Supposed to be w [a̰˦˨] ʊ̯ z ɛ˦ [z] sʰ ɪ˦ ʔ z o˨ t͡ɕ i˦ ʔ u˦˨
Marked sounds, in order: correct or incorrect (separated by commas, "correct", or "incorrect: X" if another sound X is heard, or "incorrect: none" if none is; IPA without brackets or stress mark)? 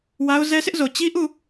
incorrect: a˦, incorrect: none